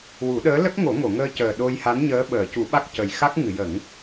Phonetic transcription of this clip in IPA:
wu˨˩˦ɗəː˧˥lə˦˥k̚ ŋo˨˩˦ŋo˨˩˨ŋəː˧cəː˨˩ ɗo˧jha˧˥n ɲəː˧˥ɓəː˨˩˨cu˨˩˦ɓa˦˥k̚ cə˨˩j xa˦˥k̚ ŋɨ˨˩˨jə˨˩˦ŋ

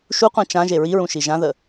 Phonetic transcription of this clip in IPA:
ʃuqʷã t͡ʃãʒe ɹiɹũʃi ʒãðə

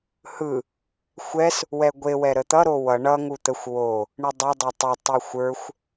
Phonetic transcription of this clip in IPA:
hɯ | xʷɛs | wɛɡʷe wɛɾət̪ʌ ɾowʌ ɳʌ ŋut̪əxʷ wo | ɳɯdˤɵ dˤʌtˤʌ tˤɛxʷə˞xʷ

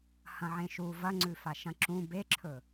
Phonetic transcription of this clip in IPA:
hɐ̃ʕẽʃu vɐŋ͡ǀʉfaʃɐ̃ ǁũ beǁʰɵ

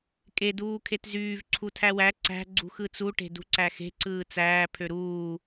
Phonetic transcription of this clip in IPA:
kʼe duːkʰetzyːv ǀʰutʰæwæ ǀæ̤ ɡ͡ǀṳxɯt͡su ʈe̤dṳǀæxe̤ ǀɯːt͡sæː pʰøɾuː

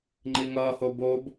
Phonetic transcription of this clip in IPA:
ŋ͡ǃiŋʌːho bob

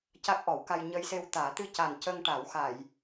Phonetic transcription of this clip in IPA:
ca˦˥k̚ʔɔ˨˩˦wka˧j ɲə˧jse˧wt̪aː˨˩˦ t̪ɨ˧ca˨˩n cə˧ŋʈa˨˩˦w xa˨˩˨j

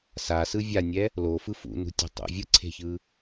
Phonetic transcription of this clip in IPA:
sasɯ vʲanʲɛ | lofɯ fṵnṳtʲe̤ tˤṵ vʲɯǀʰe̤çɯ

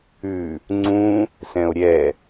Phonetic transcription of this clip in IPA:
ʉ | ŋ͡ǀũ | sɛ̃o̯ɾʲɛ

